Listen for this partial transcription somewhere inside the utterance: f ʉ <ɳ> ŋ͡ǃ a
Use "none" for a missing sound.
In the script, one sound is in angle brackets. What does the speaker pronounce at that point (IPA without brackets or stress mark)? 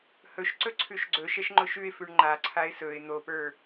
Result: ɳ